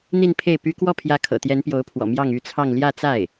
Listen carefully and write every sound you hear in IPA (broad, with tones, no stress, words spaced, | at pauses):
n̪i˥˧npʰe˥˩ɪ̯py˥ kwɔ˥˩pʰjä˧˥ kʰɤ̰˨˩t̪jɛ˧˥npjo˧˥ʊ̯pʰwɔ̰˨˩ mjɑ˥˧ŋy˥˧t͡sʰɑ˥˧ŋ ljä˥˧t͡sa˥˩ɪ̯